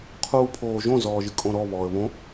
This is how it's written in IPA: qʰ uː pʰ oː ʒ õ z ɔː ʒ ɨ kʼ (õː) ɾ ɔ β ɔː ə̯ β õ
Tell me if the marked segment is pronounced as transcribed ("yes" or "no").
no